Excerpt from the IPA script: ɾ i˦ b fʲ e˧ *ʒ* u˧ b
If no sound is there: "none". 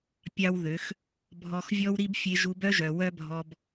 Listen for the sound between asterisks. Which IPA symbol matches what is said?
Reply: ʒ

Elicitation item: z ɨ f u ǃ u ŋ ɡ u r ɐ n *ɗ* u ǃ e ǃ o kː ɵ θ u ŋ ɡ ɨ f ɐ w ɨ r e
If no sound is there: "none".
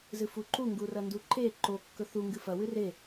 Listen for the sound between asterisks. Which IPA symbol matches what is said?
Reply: d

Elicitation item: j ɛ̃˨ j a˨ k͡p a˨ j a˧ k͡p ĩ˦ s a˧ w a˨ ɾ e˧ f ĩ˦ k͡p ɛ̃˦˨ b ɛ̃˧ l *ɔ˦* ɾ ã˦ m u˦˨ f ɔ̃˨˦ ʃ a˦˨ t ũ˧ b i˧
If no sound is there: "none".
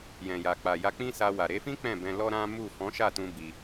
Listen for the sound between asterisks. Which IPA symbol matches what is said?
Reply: ɔ˦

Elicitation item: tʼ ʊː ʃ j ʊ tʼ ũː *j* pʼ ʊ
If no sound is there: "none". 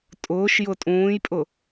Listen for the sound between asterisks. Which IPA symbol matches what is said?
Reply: j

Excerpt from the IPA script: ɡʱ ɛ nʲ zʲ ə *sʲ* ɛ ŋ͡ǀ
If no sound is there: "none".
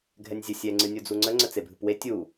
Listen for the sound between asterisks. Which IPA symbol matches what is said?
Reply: sʲ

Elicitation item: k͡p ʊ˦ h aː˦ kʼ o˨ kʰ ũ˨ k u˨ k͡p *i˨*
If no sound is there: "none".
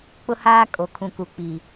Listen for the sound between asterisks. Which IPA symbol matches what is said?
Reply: i˨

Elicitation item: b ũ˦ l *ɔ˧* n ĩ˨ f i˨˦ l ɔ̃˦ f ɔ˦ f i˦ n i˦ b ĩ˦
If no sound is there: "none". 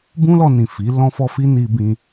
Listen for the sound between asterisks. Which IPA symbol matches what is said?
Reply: ɔ˧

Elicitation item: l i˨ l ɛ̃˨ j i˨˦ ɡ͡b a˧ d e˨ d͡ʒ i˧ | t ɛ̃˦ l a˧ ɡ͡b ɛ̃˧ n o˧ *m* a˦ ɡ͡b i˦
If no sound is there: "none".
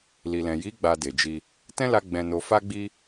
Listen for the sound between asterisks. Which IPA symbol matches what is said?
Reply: f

